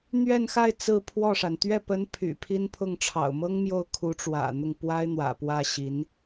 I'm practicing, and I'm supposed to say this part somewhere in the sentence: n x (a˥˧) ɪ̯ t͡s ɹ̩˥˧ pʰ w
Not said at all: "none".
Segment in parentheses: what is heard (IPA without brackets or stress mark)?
a˥˧